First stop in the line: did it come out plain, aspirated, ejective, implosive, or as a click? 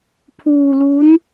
aspirated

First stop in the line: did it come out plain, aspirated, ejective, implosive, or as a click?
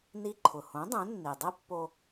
click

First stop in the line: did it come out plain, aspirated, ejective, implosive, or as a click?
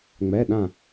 implosive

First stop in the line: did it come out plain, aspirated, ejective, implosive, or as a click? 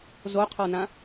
aspirated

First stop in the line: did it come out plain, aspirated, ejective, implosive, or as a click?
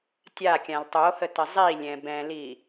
plain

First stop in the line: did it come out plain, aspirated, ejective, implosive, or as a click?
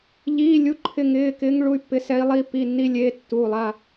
click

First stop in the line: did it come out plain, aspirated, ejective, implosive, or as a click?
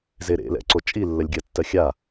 click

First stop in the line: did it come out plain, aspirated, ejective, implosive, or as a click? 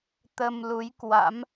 plain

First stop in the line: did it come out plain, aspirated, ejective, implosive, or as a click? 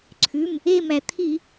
click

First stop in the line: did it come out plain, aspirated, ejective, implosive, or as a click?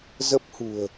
plain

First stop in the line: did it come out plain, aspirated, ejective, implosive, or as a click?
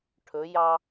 aspirated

